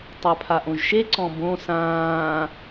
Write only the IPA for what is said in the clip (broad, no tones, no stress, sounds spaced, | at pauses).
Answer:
tˤ œ pʰ a ʔ õ ʒ ʃ e ǀ ɔ̃ b õ s ãː